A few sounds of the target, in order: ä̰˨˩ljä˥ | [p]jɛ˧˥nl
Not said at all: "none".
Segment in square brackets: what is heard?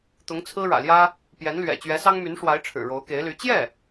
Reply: p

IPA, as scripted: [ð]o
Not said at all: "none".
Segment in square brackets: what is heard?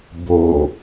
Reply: b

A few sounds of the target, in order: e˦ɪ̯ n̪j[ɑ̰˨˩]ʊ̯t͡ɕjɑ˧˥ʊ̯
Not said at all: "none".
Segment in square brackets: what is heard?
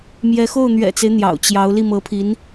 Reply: ɑ̰˨˩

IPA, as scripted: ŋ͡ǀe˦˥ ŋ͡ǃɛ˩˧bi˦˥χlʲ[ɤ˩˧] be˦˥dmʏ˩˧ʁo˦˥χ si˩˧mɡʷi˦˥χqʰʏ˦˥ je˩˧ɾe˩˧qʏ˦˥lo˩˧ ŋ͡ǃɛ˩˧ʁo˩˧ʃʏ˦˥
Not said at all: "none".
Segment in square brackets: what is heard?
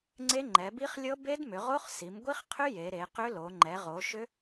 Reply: ɤ˦˥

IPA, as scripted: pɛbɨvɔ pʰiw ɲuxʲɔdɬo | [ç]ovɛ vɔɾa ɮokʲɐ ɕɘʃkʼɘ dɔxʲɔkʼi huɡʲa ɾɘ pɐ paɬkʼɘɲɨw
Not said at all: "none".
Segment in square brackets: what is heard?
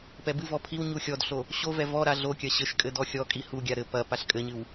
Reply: ɕ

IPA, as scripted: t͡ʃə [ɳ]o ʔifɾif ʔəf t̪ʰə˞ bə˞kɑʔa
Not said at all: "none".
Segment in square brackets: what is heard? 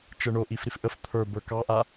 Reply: ɳ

